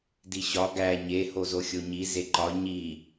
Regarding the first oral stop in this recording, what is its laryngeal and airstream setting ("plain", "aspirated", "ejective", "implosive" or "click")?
plain